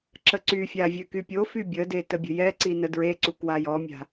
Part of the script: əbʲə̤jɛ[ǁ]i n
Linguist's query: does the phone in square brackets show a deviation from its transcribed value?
yes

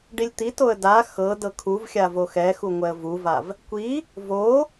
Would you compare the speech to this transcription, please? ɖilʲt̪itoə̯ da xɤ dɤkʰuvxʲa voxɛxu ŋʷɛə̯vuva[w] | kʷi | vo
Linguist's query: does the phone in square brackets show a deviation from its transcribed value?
yes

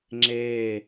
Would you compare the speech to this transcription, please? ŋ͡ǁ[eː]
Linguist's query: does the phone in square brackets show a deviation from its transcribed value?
no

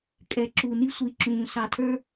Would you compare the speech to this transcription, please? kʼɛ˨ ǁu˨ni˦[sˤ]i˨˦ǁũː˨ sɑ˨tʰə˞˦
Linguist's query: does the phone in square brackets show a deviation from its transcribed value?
yes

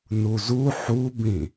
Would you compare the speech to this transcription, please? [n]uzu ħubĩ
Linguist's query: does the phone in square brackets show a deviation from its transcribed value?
no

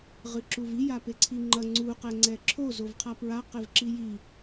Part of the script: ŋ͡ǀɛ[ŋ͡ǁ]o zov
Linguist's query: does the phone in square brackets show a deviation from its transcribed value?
yes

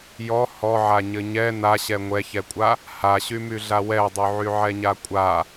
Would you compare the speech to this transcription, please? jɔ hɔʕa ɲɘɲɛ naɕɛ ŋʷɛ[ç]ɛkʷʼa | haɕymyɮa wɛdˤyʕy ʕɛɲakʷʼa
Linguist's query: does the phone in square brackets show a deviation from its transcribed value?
no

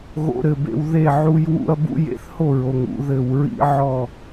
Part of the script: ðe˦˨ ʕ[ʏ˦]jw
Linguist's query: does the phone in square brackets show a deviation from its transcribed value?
yes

